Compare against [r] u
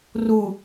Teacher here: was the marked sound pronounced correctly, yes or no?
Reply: yes